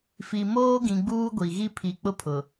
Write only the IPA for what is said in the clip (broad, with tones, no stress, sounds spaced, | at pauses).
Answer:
f i˨ m oː˦ ɡ ĩ˨ ɡ͡b uː˦ ɡʷ i˨ ɣ i˦ pʰ i˨ k͡p ʊ˦ pʰ ʊ˨